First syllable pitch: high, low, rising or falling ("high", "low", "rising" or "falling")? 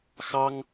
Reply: high